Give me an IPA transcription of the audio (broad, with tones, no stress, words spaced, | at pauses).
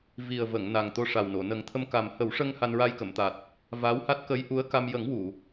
vi˨˩ə̯və˨˩˨ŋ na˨˩ŋt̪o˧ʂa˨˩wno˨˩˨ nə˨˩˦ŋt̪ʰə˧m ka˨˩m hə˨˩˦wʂə˧ŋ ha˧nɹa˧jkə˨˩˨mt̪a˨˩t̚ | va˧˥wha˦˥t̚ kə˧˥jʔu˧˥ə̯ka˧m jə˨˩˦ŋ wu˨˩˨